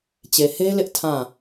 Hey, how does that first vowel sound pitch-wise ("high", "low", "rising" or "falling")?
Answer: low